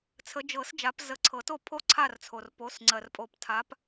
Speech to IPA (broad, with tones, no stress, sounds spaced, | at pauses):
t͡sʰ ə˨˦ d͡ʒ ɤ˨˩˦ s d͡ʒ a˨˦ p z ə˨˦ ǀʰ ɤ˨˩˦ t o˥˨ pʰ o˥˨ ǀʰ a˥˨ r t͡sʰ o˩ r p o˩˧˩ s ŋ͡ǀ ɜ˩ r pʼ o˨˩˦ p tʰ a˨˦ p